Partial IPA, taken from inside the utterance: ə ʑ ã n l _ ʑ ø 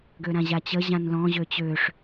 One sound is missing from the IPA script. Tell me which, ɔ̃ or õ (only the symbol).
ɔ̃